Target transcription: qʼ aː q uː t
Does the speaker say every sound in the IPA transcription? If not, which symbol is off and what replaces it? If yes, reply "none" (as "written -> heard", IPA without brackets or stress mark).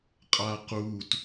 none